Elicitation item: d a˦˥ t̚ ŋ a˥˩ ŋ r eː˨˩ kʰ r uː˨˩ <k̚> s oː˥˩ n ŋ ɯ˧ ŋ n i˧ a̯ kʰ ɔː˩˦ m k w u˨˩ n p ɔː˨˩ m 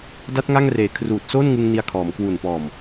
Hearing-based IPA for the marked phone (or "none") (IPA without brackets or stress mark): t̚